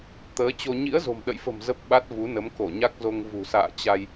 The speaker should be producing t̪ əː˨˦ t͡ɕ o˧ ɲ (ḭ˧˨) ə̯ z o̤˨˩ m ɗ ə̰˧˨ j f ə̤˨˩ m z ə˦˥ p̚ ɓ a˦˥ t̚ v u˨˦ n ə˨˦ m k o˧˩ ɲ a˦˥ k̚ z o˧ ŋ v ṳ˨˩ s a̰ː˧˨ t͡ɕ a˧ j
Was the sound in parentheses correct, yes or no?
no